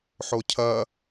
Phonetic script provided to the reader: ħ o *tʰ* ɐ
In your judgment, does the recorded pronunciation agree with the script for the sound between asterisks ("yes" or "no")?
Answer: no